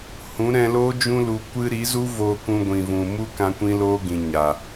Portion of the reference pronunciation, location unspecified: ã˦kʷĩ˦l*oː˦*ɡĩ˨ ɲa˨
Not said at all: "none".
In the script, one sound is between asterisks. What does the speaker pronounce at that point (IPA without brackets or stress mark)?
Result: oː˦